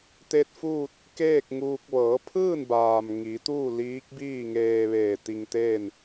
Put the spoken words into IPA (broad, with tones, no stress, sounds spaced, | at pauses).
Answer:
t̪ e˧ t̚ f uː˥˨ t̚ | k eː˥˨ k̚ ŋ uː˧ k̚ ʋ ɤː˩˧ pʰ ɯː˥˨ n b aː˩ m ŋ i˩˧ t̪ uː˥˨ l iː˧˥ k̚ b iː˥˨ ŋ eː˧ ʋ eː˧˩ t̪ i˧ ŋ t̪ eː˥˨ n